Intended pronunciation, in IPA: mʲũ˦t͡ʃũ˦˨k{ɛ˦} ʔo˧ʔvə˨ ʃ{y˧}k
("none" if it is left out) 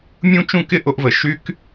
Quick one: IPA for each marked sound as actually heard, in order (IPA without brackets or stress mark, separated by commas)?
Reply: ɪ˦, y˧